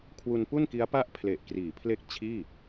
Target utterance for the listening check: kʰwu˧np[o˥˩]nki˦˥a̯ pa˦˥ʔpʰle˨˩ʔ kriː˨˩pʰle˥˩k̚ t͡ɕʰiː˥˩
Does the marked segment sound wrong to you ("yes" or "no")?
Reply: yes